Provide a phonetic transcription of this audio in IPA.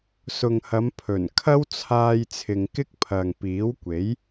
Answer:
sʊ˨ŋhɐ˨˧m pʰɵ˨˩n kʰɐ˥wt͡sʰaː˧j t͡sʰɪ˨ŋkɪ˥k̚ pʰɐ˨ŋpiː˨˥wkʷe˨˥j

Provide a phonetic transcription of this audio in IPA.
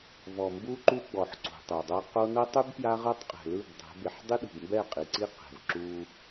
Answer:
vɔ˨mbu˦ǃu˦ɡ͡bɔ˨ħ ǀṳ˨tˤɛ˨dˤɤ˦ qo˦ nɤ˦tˤu˦b pja˦ʁɤ˦tˤ qʼɛ̤˨ lɯ˦˨bdˤɛ̤˨˦ be˨ħdˤi˦ɗṳ˨bmbɛ˦˨ qʼi˨ǀi˦ qɛ̤˨vǁu˦

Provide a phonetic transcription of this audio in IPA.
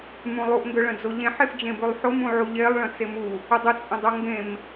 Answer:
mũlˠuʔ ŋɡøɭə̃d͡zoʎẽ ħefd͡ʒẽbʉlˠħo mũʕuʎelˠ ɭə̃t͡semu | ədˤə t͡sʼə̃dˤoŋɡẽm

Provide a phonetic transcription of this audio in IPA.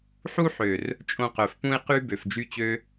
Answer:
ħu˦ħø˨r | t͡ʃʼõ˧qœ˨fpũ˦ɪ̯ qy˦ bø˨fd͡ʒy˦t͡ɕø˦

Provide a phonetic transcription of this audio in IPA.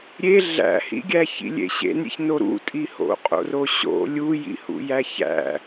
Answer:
ɾʲe ɮæ̰hḭɡʲæ çḭlʲḛɕḛnɾʲḛç noɾṵtʼi ho̰qʼo̰roɕo̰ lʲujḭhṵjæ çæ̰

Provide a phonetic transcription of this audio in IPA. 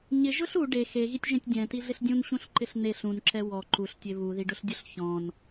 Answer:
ɲɪʒʊɬ u ɖe xeɣitʲʒẽtʲ dʲɛ̃tiɮɪɬ dʲũnɕũɬǃɪɬ neɬ ũnǁɛ wɔ ǃuɬtʲe βuðiɖʊɬdʲʊɬ çɔ̃n

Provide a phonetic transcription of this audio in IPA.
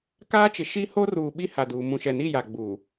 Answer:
kaː˦t͡ʃɪ˨ ʃi˦ ho˦ruː˨ ɓi˦ha˨duː˨ mũ˨ʃɛ˨ni˦˨ ja˨ ɡ͡bu˨

